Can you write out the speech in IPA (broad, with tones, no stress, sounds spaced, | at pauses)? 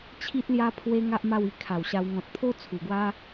t͡ɕʰ i˦ t̚ l j a˦ pʰ w e˦ ŋ a˦ ʔ m a˥˧ w i˧ kʰ a˨˩ w ɕ a˧ w ŋ ɔ̃˨ t̚ pʰ o˦ t͡sʰ u˨˩ ɡ w a˦